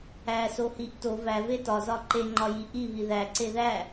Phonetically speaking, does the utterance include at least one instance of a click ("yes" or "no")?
yes